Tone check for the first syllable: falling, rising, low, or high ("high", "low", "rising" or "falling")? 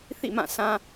falling